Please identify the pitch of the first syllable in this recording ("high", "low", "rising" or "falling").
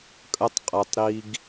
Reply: high